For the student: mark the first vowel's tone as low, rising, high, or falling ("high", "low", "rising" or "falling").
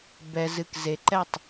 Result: low